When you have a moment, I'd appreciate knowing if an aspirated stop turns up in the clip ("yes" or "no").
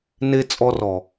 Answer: no